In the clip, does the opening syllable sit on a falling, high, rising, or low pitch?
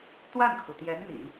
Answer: falling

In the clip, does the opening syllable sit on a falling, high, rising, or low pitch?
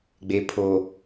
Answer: low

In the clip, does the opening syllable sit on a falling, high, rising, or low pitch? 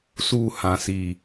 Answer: falling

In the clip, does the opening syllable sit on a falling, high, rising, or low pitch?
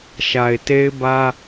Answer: low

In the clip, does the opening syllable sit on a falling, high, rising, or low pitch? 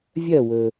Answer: falling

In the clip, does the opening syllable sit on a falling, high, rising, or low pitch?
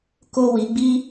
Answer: low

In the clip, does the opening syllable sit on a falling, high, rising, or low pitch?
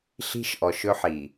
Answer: high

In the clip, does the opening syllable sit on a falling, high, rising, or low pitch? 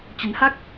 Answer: rising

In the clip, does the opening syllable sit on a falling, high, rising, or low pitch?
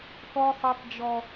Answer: high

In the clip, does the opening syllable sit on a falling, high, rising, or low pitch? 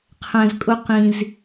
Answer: low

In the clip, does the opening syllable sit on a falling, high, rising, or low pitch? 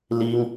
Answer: high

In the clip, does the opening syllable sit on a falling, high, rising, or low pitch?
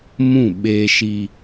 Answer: falling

